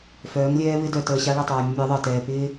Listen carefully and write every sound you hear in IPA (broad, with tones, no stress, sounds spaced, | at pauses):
f œː˨˦ ŋ lʲ ɛː˦ β ɪ˦ d œ˨ t əː˨ ɕ a˦ ɭ ɪ˦˨ tˤ œː˨ mʲ ə˦ mʲ əː˨˦ ðˤ əː˨ t ɛː˨ p ɪː˦